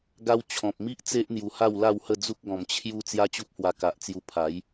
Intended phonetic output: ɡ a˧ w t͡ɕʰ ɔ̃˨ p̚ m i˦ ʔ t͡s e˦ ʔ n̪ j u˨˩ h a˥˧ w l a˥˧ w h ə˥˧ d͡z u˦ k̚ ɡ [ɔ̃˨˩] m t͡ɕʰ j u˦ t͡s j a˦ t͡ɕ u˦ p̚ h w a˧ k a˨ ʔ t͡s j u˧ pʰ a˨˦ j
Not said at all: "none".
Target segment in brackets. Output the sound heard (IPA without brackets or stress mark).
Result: ɔ̃˨˩